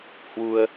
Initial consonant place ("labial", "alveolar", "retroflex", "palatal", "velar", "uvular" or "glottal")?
glottal